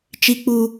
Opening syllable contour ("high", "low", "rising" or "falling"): low